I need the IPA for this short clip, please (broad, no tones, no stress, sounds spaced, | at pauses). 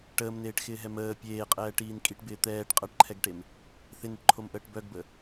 ʈ əː m n eː ʈ x ɪː ɦ ɛ m əː pʲ eː qʼ ɛː ʈ iː n kʼ i ʈ b ɪː t̪ ɛː ʈ qʼ ɐ ʈ ǃʰ ɛ ɡ ʈ e m | θ ɪ n ɪ ʈ ǃʰ o m ʔ əː ʈ b œ ɡ b ə